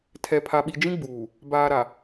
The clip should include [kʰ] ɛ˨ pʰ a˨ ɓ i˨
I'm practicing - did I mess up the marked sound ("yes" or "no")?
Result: yes